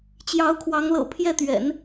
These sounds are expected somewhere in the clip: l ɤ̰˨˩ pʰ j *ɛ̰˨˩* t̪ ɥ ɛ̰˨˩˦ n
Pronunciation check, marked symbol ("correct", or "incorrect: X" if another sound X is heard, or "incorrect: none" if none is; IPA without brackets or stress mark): incorrect: ɛ˥˩